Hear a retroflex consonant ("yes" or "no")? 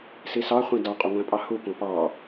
no